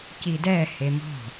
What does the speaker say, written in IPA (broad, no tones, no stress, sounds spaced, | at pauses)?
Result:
c i d ɛ h e m ɔ̤